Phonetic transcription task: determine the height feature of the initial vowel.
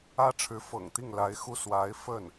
low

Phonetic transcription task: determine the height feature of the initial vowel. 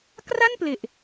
low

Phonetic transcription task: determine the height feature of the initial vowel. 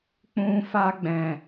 high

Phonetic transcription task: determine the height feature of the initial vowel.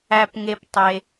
low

